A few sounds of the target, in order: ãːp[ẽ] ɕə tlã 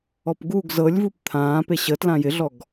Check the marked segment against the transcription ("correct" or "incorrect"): incorrect